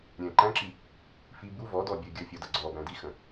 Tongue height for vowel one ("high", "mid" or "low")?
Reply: mid